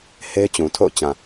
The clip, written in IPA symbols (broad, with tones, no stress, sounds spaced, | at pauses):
h e˦ ɪ̯ t͡ɕ ũ˨ tʰ o̰˦˨ ʊ̯ t͡ɕ ã˨